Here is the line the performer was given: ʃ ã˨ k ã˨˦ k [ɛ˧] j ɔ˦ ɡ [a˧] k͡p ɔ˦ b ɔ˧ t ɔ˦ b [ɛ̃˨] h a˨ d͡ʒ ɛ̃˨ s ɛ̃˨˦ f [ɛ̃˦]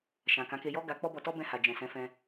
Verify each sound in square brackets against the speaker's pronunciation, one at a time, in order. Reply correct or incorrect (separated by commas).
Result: incorrect, correct, incorrect, incorrect